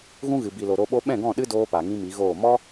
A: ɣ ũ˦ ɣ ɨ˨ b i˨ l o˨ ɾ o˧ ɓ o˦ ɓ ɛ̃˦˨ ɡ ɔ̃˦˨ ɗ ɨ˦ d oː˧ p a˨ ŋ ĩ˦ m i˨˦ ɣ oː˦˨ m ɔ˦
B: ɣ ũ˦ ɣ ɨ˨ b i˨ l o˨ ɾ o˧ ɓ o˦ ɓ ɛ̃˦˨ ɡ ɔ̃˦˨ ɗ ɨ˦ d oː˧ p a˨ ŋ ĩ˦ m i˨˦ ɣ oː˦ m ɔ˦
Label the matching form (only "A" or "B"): A